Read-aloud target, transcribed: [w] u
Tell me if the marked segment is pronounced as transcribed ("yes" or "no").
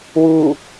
yes